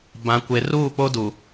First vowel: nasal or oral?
nasal